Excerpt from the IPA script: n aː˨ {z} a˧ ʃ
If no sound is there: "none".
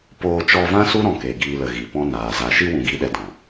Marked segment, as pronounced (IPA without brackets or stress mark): z